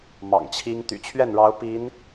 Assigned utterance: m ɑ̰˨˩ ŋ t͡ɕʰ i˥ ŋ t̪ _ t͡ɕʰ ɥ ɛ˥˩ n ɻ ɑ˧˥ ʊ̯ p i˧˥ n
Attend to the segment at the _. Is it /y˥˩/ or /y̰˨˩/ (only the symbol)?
y̰˨˩